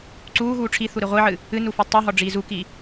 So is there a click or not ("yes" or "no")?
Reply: yes